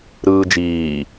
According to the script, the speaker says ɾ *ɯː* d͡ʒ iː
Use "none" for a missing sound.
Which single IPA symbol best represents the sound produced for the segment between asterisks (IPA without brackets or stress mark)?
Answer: ɯː